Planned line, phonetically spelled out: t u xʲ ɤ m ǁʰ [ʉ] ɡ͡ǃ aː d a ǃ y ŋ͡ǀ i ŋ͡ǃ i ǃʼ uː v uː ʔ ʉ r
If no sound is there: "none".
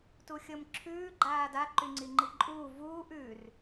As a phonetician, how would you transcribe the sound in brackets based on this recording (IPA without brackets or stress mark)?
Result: ʉː